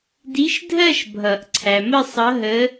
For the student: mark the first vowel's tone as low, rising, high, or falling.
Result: rising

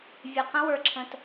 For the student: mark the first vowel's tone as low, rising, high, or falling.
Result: low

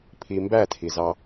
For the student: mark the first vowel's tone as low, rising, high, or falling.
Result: low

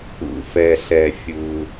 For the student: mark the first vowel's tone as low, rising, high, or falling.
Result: high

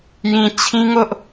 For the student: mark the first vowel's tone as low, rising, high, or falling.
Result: low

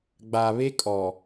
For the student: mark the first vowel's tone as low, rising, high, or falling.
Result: low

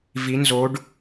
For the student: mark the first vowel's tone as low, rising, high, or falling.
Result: rising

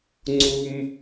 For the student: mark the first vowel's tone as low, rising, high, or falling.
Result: low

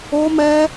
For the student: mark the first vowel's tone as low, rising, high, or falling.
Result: high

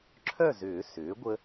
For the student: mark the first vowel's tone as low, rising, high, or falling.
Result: falling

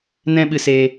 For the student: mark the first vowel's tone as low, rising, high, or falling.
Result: high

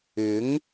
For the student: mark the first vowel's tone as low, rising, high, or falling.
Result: rising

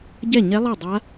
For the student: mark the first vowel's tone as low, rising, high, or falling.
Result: falling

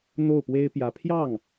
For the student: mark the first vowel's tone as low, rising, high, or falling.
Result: falling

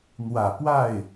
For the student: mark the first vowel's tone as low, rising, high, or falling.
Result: low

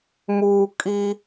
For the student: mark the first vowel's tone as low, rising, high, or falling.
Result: low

